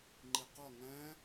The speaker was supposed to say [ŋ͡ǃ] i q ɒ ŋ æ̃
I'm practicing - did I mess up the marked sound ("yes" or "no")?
no